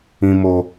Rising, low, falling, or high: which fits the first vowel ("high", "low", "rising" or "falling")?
high